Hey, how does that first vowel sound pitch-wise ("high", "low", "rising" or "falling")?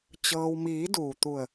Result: low